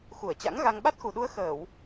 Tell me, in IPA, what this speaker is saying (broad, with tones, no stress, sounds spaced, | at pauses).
x u˧˩ ə̯ t͡ɕ a̰˧˥ ŋ ɣ a˧ ŋ ɓ a˦˥ t̚ x u˨˩ ɗ u˧ ə̯ x əː˧˩˨ w